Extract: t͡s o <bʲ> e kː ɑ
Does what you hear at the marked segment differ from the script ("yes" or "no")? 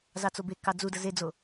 yes